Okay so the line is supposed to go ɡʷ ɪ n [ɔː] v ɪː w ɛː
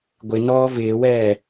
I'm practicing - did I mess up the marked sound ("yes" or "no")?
no